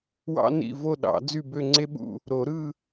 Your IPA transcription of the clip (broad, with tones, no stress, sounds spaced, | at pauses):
w ɑ̰˥ n ḭ˥˧ v o˥˧ ɗ ɑ̰˨˩˦ d͡z y˥˧ b ø˥˧ ŋ͡ǀ e˥ ɓ ṵ˥˧ | ɾ o˨˩˦ ɾ ɯ˥˧